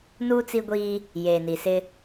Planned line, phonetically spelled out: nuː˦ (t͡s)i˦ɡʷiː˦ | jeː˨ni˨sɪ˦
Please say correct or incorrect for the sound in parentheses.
correct